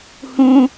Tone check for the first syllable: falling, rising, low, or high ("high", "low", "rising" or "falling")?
high